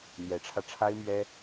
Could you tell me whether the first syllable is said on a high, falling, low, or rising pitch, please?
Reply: rising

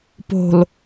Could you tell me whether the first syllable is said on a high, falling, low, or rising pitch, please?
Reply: low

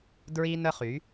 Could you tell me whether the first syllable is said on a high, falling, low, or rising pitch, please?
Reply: high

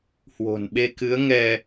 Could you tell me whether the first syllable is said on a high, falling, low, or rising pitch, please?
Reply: low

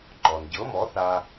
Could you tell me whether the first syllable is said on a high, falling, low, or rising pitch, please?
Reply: low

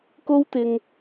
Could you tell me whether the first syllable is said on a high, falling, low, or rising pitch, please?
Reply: high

